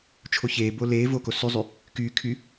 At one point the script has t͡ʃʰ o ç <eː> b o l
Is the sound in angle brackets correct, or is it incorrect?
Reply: correct